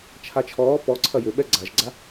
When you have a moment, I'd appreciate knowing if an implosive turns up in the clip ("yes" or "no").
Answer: yes